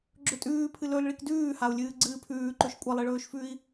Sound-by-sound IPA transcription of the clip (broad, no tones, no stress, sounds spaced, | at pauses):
ɡ͡ǁ ɵ tʼ ʉː pʰ ɨ l ɵ l ɭ i k d ʉː h a u̯ lʲ ɨː ɡ͡ǀ ɨː pʰ ʉː ǃ ɵ ʃ kʷʼ ɐ lˠ e ɭ ɵː ʃ f ʉ i̯